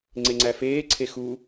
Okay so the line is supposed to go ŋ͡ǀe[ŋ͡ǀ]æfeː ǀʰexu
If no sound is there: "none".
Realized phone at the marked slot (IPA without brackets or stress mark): ŋ͡ǀ